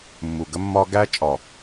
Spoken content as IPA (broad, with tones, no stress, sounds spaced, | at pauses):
mː u˨ ɡ ə˦ mː ɒ˦ ɡ æ˦ t͡ʃʼ ɒ˨